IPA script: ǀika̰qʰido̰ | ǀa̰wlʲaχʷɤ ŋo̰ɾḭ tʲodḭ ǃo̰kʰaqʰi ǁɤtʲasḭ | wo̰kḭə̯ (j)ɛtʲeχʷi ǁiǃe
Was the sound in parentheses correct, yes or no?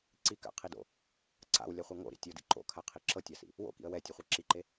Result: no